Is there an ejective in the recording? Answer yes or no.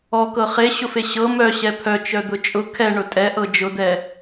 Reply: yes